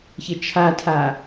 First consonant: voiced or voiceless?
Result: voiceless